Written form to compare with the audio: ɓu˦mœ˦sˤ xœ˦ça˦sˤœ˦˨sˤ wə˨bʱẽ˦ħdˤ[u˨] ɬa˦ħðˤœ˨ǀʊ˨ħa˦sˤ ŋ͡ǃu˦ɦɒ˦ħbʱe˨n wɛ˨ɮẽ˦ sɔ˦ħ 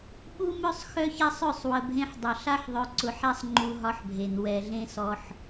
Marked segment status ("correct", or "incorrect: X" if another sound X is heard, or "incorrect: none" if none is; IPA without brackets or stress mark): incorrect: ʊ˨